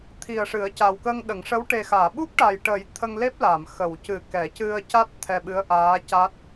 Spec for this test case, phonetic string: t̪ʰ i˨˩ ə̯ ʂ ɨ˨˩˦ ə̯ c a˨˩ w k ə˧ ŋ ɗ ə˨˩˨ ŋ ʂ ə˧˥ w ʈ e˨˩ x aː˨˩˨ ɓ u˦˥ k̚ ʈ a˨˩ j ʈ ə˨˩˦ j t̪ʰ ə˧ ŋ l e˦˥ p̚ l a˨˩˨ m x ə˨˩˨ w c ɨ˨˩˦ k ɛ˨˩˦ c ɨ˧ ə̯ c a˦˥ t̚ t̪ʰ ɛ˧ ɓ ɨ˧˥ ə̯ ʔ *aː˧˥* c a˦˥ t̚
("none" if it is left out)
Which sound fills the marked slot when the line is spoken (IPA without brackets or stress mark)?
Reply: aː˧˥